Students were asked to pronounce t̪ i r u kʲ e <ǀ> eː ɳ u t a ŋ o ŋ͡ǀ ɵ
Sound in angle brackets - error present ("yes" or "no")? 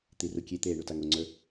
yes